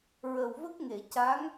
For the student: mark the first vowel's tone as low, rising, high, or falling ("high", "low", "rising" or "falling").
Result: low